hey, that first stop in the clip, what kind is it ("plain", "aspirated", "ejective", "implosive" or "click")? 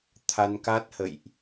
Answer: aspirated